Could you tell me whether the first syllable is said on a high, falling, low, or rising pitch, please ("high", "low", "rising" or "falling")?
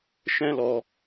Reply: high